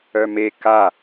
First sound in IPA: œ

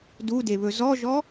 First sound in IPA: d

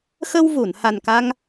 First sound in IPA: x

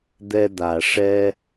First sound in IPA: d̪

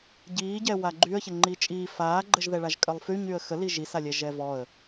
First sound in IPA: ɟ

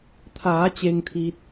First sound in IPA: t̪ʰ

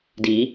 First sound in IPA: d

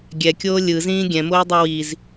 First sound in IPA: ɡʲ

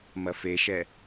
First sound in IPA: m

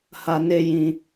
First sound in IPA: h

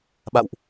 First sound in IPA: ɓ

